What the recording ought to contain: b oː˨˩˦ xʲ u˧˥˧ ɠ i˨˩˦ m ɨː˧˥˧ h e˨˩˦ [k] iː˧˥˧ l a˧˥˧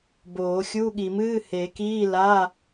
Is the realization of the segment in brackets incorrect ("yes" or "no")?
no